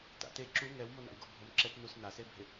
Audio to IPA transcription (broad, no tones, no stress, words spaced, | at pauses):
ta̰te ǁu ŋɛwmona̰wɡo bʱomǁɛtnus nasebʱɪ